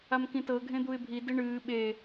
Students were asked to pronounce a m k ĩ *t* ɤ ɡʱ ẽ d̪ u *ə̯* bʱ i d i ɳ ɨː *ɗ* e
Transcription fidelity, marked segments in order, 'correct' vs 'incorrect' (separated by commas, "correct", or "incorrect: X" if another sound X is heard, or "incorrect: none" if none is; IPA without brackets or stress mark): correct, incorrect: ɪ̯, incorrect: ɓ